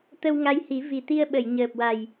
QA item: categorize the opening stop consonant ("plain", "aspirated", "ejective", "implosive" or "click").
plain